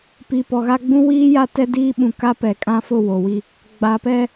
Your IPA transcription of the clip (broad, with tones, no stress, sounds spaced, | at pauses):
p i˨ p ɔ˨ ɣ a˦ ɡ͡b ũ˦ w iː˦ j a˦ t ɛ˦ d iː˦ ɓ ũ˨ k a˦ p ɛ˨ kʼ ã˦ f ʊ˦˨ w o˨ w i˦ | ɡ͡b a˨ p ɛ˦